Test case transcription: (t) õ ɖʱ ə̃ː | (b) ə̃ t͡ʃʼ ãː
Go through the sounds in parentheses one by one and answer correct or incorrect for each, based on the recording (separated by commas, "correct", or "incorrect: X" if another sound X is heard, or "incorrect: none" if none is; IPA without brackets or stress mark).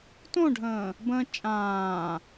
correct, correct